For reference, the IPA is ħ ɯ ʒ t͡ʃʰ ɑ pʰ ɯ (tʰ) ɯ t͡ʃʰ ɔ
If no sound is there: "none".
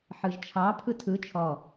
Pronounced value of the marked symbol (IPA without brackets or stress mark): tʰ